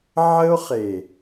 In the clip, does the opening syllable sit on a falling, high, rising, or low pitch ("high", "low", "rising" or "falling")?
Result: high